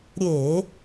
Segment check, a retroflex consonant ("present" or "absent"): absent